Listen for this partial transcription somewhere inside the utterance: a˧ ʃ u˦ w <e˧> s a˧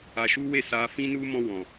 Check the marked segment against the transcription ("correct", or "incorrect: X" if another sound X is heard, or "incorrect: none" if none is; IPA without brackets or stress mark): incorrect: e˦˨